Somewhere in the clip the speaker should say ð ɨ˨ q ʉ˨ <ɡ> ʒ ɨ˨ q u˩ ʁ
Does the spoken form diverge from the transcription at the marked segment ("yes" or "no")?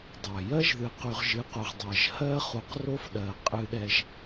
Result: yes